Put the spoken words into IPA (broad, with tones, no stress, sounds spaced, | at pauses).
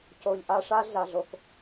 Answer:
c o˨ ʎ ʔ a˦ ʂ a˦ ɮ a˨ ɮ o˨ k